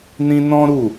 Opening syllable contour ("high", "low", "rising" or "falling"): high